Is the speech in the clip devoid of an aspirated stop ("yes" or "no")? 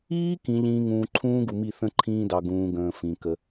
no